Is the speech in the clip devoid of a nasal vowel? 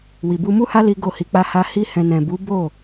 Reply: no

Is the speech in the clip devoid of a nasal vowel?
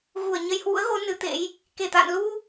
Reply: yes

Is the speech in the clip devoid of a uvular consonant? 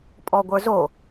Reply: yes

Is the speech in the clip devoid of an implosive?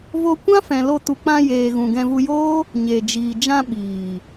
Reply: no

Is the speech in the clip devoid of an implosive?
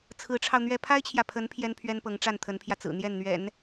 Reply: yes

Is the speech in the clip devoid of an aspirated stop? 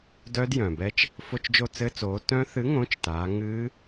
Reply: yes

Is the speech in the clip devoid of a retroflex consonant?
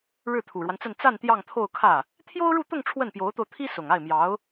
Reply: no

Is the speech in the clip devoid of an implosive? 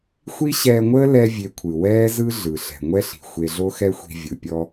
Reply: yes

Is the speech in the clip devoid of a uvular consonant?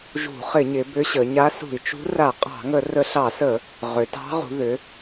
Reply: no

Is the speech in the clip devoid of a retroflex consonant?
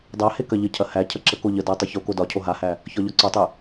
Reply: yes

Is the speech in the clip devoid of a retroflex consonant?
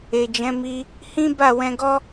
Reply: yes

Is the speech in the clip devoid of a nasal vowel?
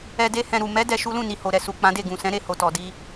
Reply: no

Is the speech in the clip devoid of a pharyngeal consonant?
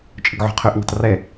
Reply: no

